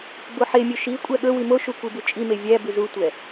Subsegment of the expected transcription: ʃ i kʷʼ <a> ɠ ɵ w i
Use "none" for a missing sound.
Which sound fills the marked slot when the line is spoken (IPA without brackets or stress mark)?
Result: æ